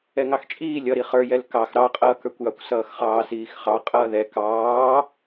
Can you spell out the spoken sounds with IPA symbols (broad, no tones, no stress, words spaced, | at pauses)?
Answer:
ɛŋɑxt͡ʃʼiː lʲʌɾi χə˞jɛl kɑx ɾɑqʼʌːkə˞kʷjɑkʷ sʌːxχɑːsiːxχɑ qʼʌːðɛ kɑː